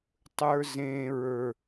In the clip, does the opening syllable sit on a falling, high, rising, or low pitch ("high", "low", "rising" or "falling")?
high